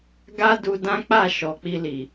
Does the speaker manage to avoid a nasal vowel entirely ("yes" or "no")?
no